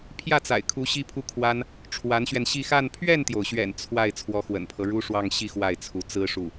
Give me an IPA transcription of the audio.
pʰjä˥˩t͡sa̰˨˩ɪ̯kʰu˧˥ ɕi˥pʰu˥kʰwa˥n | ʈ͡ʂʰwa˧˥nɕɥɛ˧nɕi˥˧ xa˥˧n pʰɥɛ˥˩nt̪jo˩ʊ̯ɕɥɛ̰˨˩n t͡sʰwa˥˩ɪ̯ t͡sʰwɔ˧˥xwə̰˨˩npʰɤ˦ɻu˥ ʂwɑ˥˧ŋɕi˥˧ xwa˥˩ɪ̯t͡sʰu˧˥ t͡sɹ̩˥ʂu˥˩

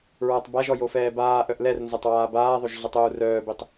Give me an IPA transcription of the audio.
ɹɔtˤ baʒɔ jofɛːbaːʔœʔ lɛrnzotˤ waːbaːðˤoʒ ɮətˤuːrœːbitˤ

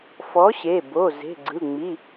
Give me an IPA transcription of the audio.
fɔ˨˥ɕe˩˧˩ bo˩˧˩ ze̤˩˧˩ɡ͡ǀɯ˩˧˩ ŋ͡mi˩˧˩

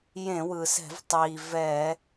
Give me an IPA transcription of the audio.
jẽ˧˩˧wɯ˩sɛ̤˧˩˧vtˤiː˩ vɛ˧˩˧

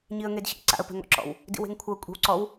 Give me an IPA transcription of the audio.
ɲiə̯ŋedɕḭ ǀa̰ə̯pɛ̤ŋɔ̰ ǁɔ̰w | dḭwe̤ŋkʷʰɤ kʷʼe̤wǀɔw

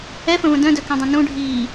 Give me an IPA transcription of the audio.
ɛfə̃və̃ dœ̃dœkɛ̃dˤɛ̃ nũɖʱiː

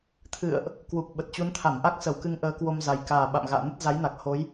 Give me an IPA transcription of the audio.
t̪ʰɨ̰˧˨ə̯ʔ | kwu˨˩k̚ɓə˨˩t̚t͡ɕu˨˦nt̪ʰa˧˩m ʔa˦˥k̚sə˧˩wkɨ˨˦ŋ ʔəː˨˦kwo˧mza˨˩j kaː˨˩ ɓa̰˧˨mɣa̰ː˧˨ nə˦˥t̚za˨˦jna˨˩k̚ ho˨˦j

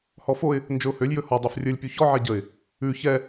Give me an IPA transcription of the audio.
hɔfoɪ̯ | nd͡ʒɵʊ̯hølʲ jɵhɔ dˤɛfrʲɵlʲ pʲuçɔ ʕɛɟəɪ̯ | ʉ çɛ

